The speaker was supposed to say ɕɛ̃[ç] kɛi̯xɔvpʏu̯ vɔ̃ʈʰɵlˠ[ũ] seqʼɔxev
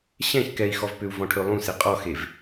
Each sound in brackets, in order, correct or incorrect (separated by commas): correct, correct